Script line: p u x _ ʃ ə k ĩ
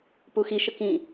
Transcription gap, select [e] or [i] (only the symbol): i